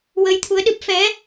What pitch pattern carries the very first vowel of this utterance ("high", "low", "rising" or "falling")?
rising